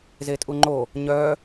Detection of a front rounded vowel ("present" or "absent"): present